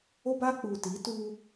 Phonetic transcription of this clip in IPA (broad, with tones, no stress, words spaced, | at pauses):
o˦baː˦ k͡puː˨ti˨˦ tuː˦